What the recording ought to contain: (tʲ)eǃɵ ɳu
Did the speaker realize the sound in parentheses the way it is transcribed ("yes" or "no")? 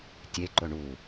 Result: yes